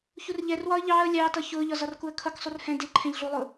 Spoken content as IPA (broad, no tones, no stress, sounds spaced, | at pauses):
ç u r ʎ ɛ r w ɒ ə̯ ʎ ɑː ə̯ lʲ ɑː t ʌ ç ʊː ʎ ɒ z ɒ r k u ə̯ kʰ ʌ k sˤ u r h ɛ̃ d ɪ ǃʰ ɛ̃ ʎ ɮ u lˠ ʊː